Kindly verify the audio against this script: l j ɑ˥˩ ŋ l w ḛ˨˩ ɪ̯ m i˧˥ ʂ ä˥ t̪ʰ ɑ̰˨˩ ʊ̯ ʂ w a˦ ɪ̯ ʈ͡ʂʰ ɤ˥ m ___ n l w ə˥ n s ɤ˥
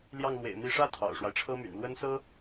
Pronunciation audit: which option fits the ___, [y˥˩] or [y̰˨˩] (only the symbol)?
y̰˨˩